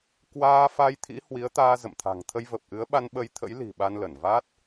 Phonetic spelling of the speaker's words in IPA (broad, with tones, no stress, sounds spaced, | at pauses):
k w aː˧ f a˧ j t̪ʰ ḭ˧˥ h w i˨˦ ə̯ t̪ aː˧ z ə̰˧˨ m t̪ʰ a̤˨˩ ŋ t̪ʰ ə˧ j v ə˨˩ p̚ ʔ ɨ˨˦ ə̯ ɓ a˧ n ɓ ə˧ j t̪ʰ ə̰˧˥ j l i̤˨˩ ɓ a˧ n l ə˧˩ n v a˦˥ t̚